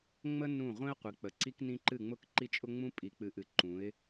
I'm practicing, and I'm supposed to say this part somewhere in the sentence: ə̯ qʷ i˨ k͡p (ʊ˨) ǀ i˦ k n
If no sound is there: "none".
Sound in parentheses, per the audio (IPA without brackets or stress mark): ə˨